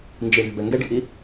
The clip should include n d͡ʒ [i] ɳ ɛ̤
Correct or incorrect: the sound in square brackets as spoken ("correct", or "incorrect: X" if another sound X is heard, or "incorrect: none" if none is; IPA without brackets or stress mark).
correct